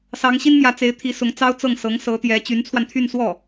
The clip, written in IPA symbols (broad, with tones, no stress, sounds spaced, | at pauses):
s ɑ˧˥ ŋ ɕ i˥ n m j ä˧˥ t͡s e˧˥ ɪ̯ t̪ʰ i˧˥ s ʊ˧˥ ŋ t͡s ɑ˥ ʊ̯ t͡s ɤ˥˩ ŋ s ɤ˧˥ ŋ s ɤ˧˥ t̪ j ɛ˧˥ t͡ɕ y˧˥ n t͡sʰ w a˧ n t̪ʰ y˥˧ n s w ɔ˥˩